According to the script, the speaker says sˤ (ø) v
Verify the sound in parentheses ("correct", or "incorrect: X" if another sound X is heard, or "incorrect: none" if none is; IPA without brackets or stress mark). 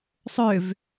correct